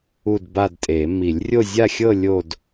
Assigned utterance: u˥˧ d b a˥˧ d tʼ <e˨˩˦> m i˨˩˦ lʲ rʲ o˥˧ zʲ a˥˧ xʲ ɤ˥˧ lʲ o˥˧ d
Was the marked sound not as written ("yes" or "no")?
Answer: no